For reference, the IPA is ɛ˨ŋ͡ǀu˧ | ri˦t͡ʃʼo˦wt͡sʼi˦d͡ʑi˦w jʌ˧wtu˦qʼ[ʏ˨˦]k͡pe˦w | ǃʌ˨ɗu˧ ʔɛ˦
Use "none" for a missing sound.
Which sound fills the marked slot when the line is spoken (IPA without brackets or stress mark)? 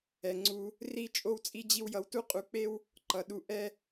u˨˦